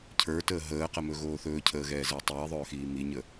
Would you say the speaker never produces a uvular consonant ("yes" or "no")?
no